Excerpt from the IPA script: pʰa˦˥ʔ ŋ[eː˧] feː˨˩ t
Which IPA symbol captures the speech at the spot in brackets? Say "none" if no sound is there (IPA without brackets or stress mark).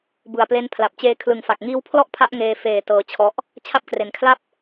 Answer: eː˧